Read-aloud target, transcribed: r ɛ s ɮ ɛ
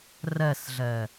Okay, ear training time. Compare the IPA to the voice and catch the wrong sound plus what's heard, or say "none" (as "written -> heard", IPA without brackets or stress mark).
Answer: none